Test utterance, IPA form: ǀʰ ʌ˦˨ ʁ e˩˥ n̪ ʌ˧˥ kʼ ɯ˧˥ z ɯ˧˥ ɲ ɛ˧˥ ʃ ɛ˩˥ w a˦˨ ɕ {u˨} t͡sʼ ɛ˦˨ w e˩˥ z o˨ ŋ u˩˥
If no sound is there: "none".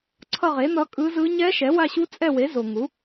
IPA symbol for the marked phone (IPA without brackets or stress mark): u˧˥